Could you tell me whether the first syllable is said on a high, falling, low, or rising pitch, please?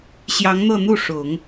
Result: rising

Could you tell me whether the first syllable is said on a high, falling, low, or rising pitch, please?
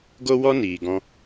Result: high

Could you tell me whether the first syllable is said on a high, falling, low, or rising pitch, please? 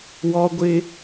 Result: high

